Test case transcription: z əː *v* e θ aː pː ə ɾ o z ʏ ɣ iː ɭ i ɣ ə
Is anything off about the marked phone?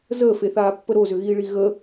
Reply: yes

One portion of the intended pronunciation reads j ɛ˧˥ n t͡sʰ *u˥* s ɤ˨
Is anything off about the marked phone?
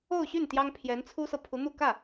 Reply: no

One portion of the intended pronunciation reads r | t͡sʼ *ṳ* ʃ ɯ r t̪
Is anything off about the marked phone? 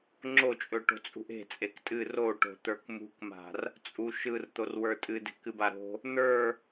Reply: yes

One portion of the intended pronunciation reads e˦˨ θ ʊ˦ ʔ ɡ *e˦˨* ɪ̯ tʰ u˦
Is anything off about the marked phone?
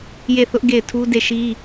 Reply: no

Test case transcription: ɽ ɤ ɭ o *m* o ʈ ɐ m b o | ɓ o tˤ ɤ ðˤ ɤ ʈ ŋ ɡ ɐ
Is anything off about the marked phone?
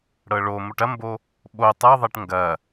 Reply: no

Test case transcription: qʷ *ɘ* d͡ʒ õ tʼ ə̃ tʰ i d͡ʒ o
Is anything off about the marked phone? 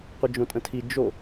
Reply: no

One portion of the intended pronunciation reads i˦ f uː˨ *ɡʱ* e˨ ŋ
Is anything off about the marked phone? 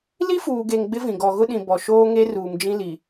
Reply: yes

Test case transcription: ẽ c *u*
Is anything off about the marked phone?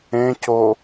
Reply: yes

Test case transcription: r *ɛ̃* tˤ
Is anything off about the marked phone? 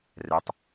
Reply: yes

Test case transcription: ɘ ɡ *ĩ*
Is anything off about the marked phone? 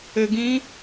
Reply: no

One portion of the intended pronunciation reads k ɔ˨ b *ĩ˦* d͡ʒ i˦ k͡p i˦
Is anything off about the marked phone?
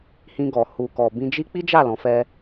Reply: yes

